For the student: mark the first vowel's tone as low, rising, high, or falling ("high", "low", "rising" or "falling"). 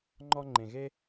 high